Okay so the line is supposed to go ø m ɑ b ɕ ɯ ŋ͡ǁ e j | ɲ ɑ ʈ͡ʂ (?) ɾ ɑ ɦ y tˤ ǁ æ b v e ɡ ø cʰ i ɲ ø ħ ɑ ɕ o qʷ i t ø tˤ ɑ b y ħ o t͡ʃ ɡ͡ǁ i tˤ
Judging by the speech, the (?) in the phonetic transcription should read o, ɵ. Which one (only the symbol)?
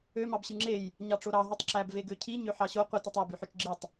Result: o